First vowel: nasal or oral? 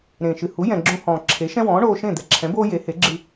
nasal